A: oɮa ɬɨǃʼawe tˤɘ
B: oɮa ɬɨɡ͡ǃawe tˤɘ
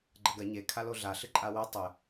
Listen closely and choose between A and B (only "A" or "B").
A